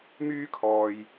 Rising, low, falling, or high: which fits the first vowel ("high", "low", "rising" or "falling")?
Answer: high